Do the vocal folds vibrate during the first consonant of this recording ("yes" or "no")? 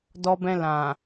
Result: yes